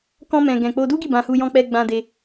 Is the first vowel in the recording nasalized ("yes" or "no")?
yes